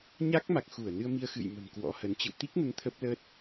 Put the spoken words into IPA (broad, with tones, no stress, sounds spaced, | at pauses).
ɲ a˦˥ k̚ m a˨˩ k̚ x u˧˩ ə̯ n ɨ˧ ə̯ m i˧ ə̯ x ɨ̰˧˨ j m ə̤˨˩ m k w ɔ̰˧˥ h ə˨˦ n t͡ɕ ɨ̰˧˨ w t̪ i˦˥ k̚ n ə˨˦ n t̪ʰ ə˦˥ p̚ l ə˦˥ t̚